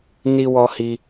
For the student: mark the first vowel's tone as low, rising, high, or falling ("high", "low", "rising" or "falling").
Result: high